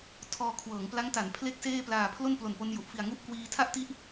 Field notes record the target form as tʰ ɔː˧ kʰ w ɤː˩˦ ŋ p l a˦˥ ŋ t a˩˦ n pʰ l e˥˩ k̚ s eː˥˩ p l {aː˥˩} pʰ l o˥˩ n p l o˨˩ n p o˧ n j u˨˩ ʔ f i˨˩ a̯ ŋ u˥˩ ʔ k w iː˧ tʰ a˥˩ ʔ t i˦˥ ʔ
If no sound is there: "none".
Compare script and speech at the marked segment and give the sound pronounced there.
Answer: aː˨˩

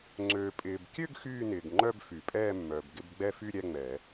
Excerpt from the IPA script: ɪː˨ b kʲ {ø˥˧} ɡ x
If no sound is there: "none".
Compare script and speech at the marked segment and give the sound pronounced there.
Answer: ø˥˧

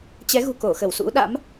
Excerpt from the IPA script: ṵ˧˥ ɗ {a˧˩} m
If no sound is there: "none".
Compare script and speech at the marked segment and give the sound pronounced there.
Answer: a̰˧˥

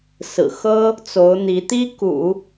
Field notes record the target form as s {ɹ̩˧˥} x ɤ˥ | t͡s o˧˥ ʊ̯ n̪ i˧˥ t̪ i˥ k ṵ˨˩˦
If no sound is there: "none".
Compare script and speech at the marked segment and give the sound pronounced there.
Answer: ɹ̩˨˩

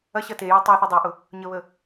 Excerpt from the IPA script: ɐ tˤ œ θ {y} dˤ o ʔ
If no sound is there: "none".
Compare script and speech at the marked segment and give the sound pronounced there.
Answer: y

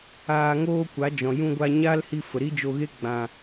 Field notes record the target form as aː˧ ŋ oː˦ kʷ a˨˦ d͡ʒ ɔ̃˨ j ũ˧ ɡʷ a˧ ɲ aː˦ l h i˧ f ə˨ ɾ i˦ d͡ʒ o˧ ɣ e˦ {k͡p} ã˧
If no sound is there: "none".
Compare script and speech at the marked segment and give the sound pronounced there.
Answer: ɡ͡b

